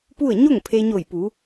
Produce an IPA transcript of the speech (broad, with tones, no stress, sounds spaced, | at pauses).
p u˥˨ ə̯ ɲ o˥˨ ŋ pʰ e˧ ɲ o˧˩ j p u˩˧